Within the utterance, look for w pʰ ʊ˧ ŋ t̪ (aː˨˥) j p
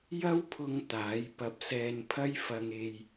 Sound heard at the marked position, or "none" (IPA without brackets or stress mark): aː˨˥